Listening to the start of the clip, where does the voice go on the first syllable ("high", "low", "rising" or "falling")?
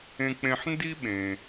low